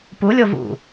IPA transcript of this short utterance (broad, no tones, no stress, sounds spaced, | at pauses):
p u lʲ o v ṵ